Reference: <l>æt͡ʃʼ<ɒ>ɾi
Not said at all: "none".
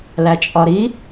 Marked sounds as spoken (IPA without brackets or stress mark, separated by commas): l, ɒ